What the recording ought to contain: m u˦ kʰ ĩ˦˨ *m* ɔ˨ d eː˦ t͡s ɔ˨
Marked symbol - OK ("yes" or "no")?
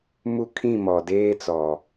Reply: yes